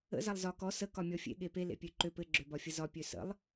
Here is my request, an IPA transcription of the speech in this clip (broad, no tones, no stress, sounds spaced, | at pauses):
ə̰ z a lˠ z ɒ k ɔ s ə k ɒ mʲ ɔ fʲ ḛ ɠ e p e l ḛ pʲ ø ǃ ø p ɘ ɡ͡ǁ ø b ɒ fʲ ə z ɒ pʲ ø s ə̰ lˠ